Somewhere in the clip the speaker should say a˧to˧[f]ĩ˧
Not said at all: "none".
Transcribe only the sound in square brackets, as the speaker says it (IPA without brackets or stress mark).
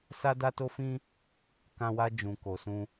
f